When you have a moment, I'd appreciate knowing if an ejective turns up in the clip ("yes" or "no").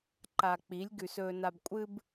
yes